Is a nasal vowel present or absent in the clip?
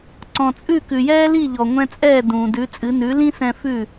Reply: present